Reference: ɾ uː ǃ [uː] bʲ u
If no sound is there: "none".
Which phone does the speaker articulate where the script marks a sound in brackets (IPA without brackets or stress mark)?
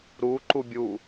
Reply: u